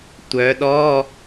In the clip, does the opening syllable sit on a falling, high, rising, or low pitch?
rising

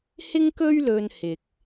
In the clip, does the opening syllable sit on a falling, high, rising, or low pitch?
high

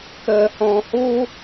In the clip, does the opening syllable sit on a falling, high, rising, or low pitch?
low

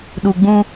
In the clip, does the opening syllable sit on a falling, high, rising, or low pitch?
low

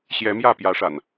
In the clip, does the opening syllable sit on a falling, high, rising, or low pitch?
rising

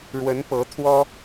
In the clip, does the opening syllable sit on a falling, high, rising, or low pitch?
rising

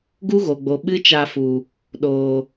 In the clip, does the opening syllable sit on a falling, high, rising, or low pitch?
high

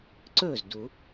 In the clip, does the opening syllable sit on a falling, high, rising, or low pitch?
falling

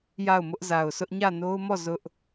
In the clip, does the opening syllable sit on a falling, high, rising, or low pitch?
falling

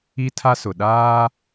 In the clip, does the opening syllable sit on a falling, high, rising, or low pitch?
high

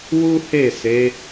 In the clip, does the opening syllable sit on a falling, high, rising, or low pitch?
high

